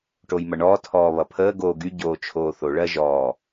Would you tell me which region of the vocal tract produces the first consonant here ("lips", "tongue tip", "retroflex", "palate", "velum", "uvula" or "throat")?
retroflex